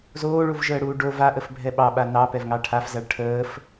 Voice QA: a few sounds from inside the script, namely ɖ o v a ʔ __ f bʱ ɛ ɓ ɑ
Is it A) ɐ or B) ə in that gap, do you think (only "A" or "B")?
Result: B